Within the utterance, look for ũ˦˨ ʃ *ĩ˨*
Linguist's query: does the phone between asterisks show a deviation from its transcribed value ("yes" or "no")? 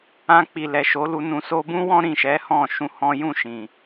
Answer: no